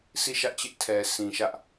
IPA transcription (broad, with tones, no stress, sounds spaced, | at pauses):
s i˦˨ ʃ ä˦ ʔ t͡ɕ ɪ˦ ʔ tʰ ɛ˨ s ĩ˨ ʃ ä˦ ʔ